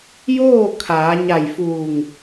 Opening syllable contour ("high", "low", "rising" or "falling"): falling